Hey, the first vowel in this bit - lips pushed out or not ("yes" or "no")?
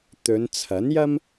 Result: yes